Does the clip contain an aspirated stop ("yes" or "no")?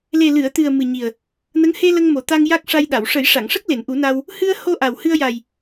no